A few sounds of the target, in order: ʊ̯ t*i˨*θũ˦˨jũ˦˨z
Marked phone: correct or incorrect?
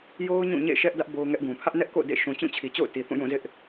correct